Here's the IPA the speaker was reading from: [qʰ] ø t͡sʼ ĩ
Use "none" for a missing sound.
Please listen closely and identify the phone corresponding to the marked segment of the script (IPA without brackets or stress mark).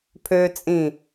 pʰ